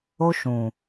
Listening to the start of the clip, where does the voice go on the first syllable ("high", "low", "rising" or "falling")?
high